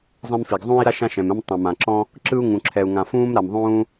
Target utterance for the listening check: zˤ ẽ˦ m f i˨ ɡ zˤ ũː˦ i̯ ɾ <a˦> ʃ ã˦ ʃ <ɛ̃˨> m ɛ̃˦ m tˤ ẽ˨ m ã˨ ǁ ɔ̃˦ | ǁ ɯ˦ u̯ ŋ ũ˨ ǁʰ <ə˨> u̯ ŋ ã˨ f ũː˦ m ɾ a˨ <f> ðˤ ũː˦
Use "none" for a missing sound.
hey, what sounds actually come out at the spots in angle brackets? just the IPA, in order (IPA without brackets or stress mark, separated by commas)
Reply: a˦, ɛ̃˨, ɛ˨, m